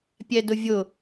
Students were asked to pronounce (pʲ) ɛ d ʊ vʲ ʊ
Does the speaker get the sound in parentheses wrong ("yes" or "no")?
no